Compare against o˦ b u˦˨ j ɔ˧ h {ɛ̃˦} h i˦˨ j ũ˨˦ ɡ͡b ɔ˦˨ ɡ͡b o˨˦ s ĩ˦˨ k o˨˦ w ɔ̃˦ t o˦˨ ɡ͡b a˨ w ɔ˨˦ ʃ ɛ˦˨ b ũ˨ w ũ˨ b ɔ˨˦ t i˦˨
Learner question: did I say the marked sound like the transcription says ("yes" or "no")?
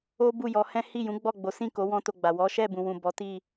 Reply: yes